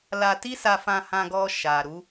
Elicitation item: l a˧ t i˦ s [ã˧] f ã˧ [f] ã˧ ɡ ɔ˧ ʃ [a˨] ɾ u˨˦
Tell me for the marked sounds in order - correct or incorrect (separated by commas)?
incorrect, incorrect, correct